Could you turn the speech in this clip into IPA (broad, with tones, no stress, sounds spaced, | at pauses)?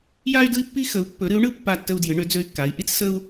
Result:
j a˥ y̯ d ɯ˥ i̯ pː i˥ x ə˧˥ u̯ pː ɵ˧˥ ɾ ɨ˧˥ u̯ ɳ ɯ˥ pː a˥ tː ə˥ u̯ d j ɨ˧˥ ɳ ø˧˥ d͡z ø˥ y̯ kː a˧˥ i̯ ʔ i˥ t͡s s ə˥ u̯